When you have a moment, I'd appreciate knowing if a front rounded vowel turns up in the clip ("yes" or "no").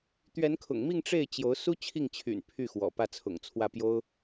yes